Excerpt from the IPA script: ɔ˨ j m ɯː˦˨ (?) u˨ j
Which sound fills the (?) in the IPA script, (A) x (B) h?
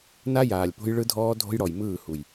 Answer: B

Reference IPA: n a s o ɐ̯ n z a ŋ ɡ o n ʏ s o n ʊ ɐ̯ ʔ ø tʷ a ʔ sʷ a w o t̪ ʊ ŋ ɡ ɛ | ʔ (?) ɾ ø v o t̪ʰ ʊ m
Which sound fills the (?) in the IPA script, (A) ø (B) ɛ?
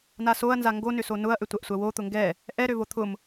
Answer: B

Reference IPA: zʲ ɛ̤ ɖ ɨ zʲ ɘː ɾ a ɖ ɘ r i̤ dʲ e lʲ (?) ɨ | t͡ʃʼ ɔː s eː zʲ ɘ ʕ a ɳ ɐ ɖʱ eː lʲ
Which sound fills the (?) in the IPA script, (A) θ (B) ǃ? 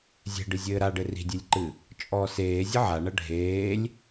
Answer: B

